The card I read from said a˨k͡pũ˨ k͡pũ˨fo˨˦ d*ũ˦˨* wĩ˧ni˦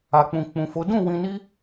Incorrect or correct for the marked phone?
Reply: correct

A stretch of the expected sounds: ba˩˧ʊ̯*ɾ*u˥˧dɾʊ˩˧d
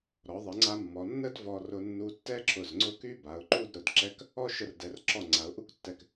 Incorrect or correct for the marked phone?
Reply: incorrect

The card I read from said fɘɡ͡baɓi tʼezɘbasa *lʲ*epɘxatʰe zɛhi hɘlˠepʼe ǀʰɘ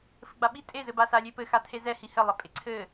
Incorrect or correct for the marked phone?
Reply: correct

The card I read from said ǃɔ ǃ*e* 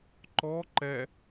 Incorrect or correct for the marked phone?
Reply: incorrect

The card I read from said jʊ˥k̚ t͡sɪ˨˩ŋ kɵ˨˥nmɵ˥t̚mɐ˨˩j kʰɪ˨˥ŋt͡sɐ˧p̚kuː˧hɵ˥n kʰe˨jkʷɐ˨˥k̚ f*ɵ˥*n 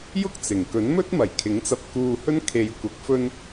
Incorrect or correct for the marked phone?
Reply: correct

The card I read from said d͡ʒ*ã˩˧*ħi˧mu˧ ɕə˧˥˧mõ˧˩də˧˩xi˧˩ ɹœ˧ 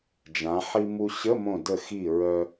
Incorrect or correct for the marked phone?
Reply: correct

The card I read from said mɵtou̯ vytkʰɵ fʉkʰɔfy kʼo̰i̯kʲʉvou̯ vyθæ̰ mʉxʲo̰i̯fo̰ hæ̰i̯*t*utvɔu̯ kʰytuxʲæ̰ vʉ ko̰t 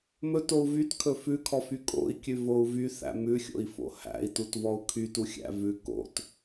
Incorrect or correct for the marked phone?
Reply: correct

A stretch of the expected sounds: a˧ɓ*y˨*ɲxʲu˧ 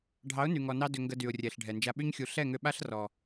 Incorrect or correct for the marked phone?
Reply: incorrect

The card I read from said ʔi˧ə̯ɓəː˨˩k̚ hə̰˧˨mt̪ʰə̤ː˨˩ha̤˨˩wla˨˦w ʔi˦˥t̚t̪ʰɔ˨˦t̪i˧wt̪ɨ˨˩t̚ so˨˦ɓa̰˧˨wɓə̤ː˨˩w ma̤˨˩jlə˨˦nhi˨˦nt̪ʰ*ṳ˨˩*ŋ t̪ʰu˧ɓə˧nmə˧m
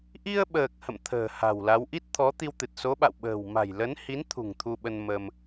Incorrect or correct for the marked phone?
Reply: correct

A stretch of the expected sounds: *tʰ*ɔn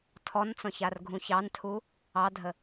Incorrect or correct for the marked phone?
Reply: correct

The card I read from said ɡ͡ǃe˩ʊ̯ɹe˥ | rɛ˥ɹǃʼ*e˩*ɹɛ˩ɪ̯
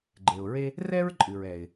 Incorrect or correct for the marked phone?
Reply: incorrect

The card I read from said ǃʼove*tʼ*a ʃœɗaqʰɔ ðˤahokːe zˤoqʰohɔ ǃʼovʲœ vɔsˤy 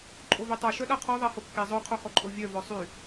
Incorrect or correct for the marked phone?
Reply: incorrect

